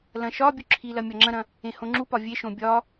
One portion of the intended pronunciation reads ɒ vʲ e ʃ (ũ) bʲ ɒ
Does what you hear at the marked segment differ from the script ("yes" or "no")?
yes